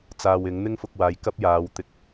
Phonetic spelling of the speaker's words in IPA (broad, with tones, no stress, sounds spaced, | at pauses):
t͡s aː˧ w ɪ˨˥ ŋ n̪ ɪ˥ ŋ f ʊ˧ k̚ w aː˨ j k ɐ˥ p̚ j aː˨˧ w t̪ ɪ˧ k̚